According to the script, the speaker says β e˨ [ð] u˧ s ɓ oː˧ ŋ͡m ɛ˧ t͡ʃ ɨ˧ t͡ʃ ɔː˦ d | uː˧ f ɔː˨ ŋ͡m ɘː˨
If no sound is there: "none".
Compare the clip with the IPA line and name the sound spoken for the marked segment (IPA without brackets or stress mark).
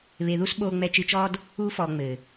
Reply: ð